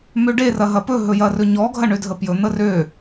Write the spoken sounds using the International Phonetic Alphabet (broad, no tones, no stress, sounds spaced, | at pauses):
m ø ɖ e r ɐ ɦ ɐ p ɵ ɦ ɵ j ɐ r ɵ ɲ ɔ ɡʱ ɐ ɳ ø dʱ ə p j ɵ n̪ ə r ø